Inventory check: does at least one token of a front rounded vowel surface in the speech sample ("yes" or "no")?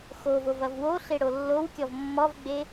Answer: no